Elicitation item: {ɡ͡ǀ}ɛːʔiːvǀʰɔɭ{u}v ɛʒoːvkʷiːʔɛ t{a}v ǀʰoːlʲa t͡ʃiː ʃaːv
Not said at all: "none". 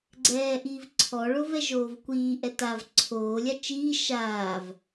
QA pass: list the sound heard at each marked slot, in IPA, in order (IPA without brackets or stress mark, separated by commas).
ɡ͡ǀ, o, a